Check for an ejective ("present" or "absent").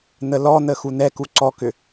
absent